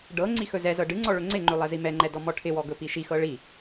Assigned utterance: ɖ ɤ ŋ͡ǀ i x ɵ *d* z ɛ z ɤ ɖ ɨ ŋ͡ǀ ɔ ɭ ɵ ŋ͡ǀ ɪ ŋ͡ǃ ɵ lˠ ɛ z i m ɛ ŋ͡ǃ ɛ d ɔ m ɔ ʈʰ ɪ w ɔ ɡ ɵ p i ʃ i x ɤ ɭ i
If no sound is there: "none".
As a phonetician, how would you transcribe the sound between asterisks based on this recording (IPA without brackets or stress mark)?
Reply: none